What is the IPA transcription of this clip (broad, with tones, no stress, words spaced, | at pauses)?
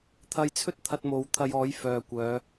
t̪ʰɐ˧jt͡sʰɵ˥t̚ t̪ʰɐ˧t̚mo˨˧w t̪ʰɐ˧jɔː˨˥j fœː˨ kʷœː˨˧